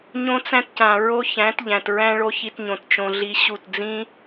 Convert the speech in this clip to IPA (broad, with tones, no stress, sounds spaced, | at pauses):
ɲ õ˦ t͡s æ̃˦ t c ã˨ ɹ o˦ ç æ̃˨˦ t ʎ æ̃˨ t ɹ æ̃˦ ɭ o˦ ç i˧ t ɲ õ˨ t t͡ʃ õ˧ ɮ i˦ ɕ u˦˨ t d͡z ĩ˦